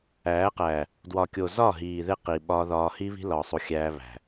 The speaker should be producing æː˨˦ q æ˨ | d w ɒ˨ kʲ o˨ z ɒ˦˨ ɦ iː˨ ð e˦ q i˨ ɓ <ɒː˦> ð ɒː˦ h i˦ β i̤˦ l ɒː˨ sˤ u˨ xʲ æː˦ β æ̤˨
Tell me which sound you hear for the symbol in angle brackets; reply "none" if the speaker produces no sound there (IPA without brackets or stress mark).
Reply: ɒː˦